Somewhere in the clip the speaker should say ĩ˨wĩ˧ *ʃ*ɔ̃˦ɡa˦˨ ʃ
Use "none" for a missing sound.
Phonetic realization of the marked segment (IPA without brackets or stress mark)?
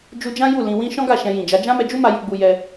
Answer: ʃ